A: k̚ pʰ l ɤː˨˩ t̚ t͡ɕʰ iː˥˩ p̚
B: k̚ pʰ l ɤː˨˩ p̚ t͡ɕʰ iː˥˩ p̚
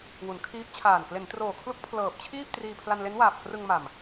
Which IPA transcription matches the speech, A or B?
B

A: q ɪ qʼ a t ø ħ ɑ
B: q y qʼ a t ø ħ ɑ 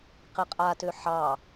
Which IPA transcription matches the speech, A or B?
A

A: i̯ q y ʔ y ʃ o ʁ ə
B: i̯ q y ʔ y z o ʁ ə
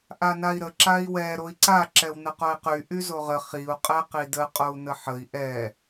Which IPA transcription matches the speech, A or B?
B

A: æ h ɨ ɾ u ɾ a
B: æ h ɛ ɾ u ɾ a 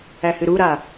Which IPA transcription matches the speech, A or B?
A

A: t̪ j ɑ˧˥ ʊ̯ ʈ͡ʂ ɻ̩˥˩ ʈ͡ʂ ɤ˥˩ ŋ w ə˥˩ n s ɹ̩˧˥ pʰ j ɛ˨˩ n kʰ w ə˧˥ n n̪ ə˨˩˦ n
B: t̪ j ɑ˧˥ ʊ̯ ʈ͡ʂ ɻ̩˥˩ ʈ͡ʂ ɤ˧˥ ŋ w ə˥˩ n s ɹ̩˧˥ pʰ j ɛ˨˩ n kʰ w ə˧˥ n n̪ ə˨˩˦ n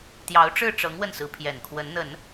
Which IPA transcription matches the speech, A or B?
B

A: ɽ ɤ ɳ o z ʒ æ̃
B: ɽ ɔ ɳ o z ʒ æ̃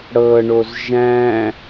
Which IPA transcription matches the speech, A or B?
A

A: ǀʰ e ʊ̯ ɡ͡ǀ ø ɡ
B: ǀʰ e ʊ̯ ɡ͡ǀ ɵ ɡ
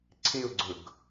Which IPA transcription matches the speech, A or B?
B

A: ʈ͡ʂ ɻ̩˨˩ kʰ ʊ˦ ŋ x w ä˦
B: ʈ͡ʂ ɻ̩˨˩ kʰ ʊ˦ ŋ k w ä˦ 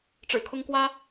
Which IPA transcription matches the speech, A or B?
B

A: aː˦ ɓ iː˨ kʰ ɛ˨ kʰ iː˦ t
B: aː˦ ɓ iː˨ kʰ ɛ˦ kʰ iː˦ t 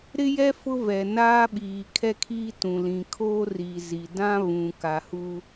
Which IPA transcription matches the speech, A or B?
B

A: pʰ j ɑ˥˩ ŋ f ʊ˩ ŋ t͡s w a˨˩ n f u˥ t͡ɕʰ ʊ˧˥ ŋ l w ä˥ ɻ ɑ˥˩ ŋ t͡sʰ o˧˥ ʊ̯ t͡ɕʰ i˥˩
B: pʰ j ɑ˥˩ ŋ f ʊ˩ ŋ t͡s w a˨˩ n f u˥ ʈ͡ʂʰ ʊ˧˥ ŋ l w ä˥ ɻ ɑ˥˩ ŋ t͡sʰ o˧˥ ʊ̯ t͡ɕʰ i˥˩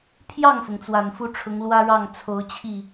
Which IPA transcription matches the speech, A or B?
B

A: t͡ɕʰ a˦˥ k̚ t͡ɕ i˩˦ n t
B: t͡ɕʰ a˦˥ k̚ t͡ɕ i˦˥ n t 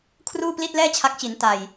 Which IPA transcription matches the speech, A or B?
A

